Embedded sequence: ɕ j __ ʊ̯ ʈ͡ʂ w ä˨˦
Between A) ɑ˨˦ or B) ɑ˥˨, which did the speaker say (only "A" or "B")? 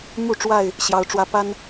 A